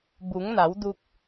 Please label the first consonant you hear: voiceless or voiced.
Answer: voiced